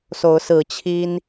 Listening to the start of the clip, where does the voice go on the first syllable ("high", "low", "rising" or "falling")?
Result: rising